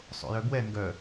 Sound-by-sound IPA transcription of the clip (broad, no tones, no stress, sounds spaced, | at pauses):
sˤ o̰ j œ b w ɛ ŋ ɡ œ